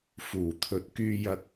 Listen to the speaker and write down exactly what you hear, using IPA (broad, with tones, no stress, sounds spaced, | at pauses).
f uː˨˩ t̪ʰ ɵ˨˥ t̚ k yː˧ j ɐ˧ k̚